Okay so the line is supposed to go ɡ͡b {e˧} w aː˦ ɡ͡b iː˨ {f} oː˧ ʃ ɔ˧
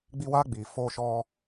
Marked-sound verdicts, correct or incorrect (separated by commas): incorrect, correct